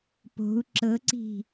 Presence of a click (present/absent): present